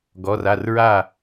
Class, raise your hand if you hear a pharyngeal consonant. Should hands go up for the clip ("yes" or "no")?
no